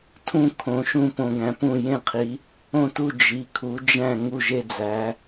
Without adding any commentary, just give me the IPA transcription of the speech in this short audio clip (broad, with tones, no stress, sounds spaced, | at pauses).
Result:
tʰ ũ˥˧ kʰ õ˨˦ ʃ ũ˥˧ p õ˨˦ ɡ æ̃˨˦ p ũ˥˧ j ẽ˥˧ qʰ i˨˦ | õ˥˧ t u˥˧ d͡ʒ i˨˦ kʰ u˨˦ d͡ʒ æ̃˥˧ ŋ u˥˧ ʒ e˥˧ d͡z æ˨˦